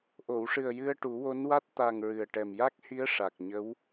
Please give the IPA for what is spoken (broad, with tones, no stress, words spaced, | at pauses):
ʔo˨˩˨wʂɨ˨˩ə̯ jɨ˧ə̯ʈu˨˩˦wo˧˥nwa˦˥t̚ t̪a˨˩ŋ ɹɨ˨˩ə̯ʈɛ˨˩m ja˦˥k̚hi˧˥ə̯ ʂa˨˩k̚ɲə˧˥w